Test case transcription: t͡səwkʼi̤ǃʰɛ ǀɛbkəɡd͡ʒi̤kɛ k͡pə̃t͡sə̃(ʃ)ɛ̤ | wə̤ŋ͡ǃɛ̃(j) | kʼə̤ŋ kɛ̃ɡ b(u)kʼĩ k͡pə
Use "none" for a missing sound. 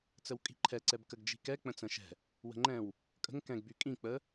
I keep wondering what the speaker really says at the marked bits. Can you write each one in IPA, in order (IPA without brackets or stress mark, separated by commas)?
ʃ, w, y